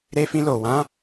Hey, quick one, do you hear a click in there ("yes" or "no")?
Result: no